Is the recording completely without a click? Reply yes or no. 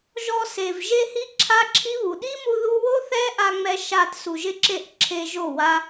no